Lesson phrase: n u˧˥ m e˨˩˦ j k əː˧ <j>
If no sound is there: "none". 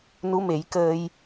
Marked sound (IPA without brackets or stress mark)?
j